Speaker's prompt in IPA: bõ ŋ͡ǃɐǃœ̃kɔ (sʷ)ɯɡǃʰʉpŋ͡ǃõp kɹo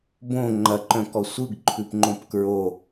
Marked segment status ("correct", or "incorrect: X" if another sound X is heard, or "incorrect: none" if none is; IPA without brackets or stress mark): correct